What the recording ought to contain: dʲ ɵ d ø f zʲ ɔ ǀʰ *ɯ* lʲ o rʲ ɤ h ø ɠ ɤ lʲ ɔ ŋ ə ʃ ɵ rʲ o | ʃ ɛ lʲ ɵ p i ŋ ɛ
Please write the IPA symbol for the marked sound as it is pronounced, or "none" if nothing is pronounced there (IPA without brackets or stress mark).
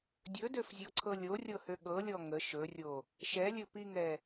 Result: ɤ